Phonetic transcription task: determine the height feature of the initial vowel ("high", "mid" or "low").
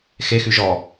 mid